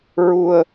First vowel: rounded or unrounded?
rounded